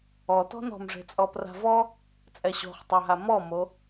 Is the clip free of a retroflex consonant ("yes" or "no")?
no